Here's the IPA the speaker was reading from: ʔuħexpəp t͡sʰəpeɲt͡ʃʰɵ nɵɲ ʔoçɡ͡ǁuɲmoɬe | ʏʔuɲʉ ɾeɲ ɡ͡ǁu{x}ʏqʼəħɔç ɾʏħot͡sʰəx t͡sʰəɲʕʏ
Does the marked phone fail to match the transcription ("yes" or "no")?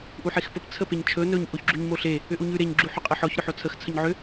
yes